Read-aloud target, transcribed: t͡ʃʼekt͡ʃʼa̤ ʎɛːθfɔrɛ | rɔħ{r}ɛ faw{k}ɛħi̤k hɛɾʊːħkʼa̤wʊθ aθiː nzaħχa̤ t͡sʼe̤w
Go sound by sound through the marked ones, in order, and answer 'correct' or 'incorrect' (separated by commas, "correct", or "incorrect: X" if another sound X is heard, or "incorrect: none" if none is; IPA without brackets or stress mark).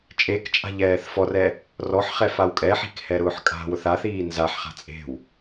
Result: incorrect: χ, incorrect: kʼ